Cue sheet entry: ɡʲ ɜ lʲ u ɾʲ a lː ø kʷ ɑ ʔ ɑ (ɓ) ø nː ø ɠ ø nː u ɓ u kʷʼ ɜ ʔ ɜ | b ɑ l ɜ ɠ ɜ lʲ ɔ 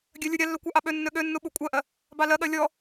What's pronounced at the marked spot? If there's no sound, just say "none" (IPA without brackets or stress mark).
ɓ